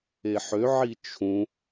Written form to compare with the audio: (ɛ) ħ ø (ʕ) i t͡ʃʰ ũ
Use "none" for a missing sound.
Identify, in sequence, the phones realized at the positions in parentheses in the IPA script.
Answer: e, ʕ

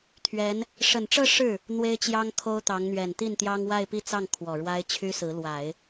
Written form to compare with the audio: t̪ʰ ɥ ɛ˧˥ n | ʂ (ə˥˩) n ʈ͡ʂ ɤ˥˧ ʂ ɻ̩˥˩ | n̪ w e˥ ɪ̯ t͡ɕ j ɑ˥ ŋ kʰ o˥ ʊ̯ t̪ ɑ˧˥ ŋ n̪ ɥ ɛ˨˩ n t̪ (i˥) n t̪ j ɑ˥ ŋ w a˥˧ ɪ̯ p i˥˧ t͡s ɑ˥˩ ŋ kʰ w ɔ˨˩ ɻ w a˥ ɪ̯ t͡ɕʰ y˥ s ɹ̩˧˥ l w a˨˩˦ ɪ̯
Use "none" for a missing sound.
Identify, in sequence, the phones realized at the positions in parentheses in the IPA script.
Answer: ə˨˩, i˥˩

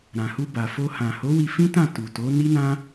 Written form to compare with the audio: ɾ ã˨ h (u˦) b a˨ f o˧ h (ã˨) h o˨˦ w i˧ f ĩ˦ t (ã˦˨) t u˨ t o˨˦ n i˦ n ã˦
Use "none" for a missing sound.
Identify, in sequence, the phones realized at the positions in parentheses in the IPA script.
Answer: u˧, ã˨, ã˦˨

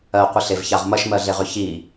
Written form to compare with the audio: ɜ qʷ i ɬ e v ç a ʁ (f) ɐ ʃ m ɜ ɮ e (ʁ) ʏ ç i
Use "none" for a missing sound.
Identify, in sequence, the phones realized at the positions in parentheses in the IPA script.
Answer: m, ʁ

